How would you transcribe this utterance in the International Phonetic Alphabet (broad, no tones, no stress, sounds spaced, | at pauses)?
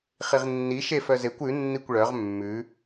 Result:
χ i ʁ nː i ʃ e f œ z e kʷ ʉ nː i kʷ ɭ œ ʁ mː ʉ